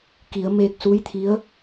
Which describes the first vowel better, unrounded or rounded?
unrounded